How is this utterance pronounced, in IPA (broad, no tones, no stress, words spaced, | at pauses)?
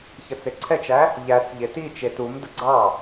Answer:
çət͡seǀʰɛt͡ʃæ | ʎæt͡s ʎetit͡ʃe tumdə ɡ͡ǀɑ